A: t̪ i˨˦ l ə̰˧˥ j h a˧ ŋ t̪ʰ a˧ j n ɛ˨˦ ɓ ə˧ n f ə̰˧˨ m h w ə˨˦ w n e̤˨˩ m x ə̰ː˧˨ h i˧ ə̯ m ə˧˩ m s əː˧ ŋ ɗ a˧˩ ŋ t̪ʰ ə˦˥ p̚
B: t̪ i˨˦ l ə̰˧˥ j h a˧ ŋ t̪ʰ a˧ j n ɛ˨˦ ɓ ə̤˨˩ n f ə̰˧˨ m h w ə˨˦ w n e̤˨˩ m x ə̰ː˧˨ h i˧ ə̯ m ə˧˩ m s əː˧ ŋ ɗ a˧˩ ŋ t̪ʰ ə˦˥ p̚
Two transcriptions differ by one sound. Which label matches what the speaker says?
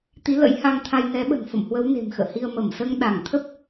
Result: B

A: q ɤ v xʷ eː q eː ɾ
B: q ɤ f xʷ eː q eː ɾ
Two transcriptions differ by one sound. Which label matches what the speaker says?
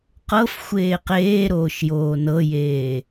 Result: B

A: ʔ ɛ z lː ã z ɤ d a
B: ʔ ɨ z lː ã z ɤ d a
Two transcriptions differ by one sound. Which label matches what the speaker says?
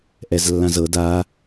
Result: A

